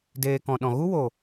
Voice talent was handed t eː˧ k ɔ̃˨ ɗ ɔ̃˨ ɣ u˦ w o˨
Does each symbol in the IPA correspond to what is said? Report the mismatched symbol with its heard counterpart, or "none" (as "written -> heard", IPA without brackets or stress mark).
t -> d